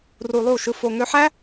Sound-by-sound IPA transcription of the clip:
ru˧lˠu˦˨ ʃɯ˧fo˧ ŋø˧ħæ˦

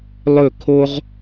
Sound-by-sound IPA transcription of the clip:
lˠɵ˦˨kʰo˦ʁ

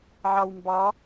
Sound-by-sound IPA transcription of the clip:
ʕɑwmbɑ

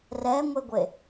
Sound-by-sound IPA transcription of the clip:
rɛŋʷeɡʷe

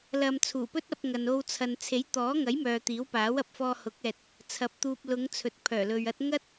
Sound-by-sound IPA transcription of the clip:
lɐ˧m t͡sʰuː˨˩pɵ˥t̚ɐ˧p̚ ŋɐ˨no˧wt͡sʰɐ˨n t͡sʰe˨˥jt̪ɔː˨˥ŋɐ˨˥j mœː˨t̪iː˨˥wpaː˨˥wɐ˨˥p̚ fɔː˧hʊ˨˥k̚ ɛː˨t̚ | t͡sʰɐ˨˥p̚t̪uː˨p̚lʊ˨˧ŋ t͡sʰɵ˨t̚pʰœː˨˩lɵ˨ɥɐ˥t̚ ŋɐ˥t̚

